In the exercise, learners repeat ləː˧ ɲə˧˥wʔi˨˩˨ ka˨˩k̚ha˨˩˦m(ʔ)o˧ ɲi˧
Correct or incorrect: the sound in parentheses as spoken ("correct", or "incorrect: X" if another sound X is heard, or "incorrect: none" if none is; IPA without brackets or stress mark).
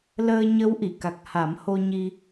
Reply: incorrect: h